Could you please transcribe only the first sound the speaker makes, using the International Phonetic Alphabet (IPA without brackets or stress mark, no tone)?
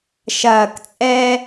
ʃ